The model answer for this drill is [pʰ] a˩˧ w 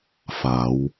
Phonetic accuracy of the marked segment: incorrect: f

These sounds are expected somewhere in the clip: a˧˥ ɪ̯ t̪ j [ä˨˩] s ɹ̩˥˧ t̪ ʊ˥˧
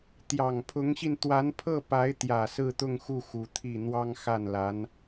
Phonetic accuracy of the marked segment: correct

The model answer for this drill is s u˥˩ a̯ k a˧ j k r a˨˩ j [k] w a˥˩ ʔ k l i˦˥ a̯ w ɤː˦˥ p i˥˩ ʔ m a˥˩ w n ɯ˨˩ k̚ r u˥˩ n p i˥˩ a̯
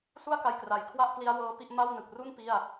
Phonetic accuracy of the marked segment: incorrect: kʰ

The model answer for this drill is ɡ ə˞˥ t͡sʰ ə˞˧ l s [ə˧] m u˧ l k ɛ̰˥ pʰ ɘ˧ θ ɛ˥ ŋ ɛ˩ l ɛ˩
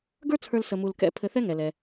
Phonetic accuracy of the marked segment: correct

